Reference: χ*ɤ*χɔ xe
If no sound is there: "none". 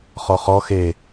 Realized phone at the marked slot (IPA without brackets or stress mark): ɔ